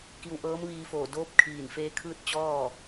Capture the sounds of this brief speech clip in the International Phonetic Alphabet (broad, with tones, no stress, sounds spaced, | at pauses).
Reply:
k i˧ w ʔ ɤː˧˥ m ʋ iː˧ f oː˧˩ d oː˧˥ p̚ kʰ iː˧˩ n f eː˧ kʰ ɯː˥˨ t̚ t͡ɕ ɔː˥˨